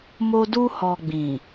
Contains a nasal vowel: yes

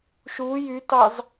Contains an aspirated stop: no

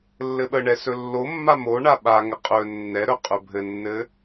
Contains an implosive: yes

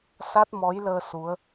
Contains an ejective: no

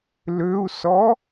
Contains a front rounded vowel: yes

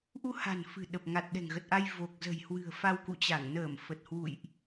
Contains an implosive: yes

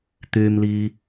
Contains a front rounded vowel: yes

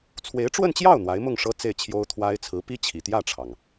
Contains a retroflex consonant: yes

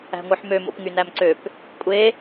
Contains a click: yes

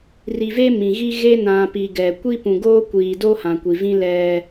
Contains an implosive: no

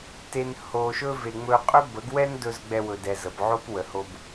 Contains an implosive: no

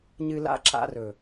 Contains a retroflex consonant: no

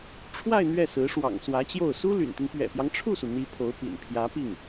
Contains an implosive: no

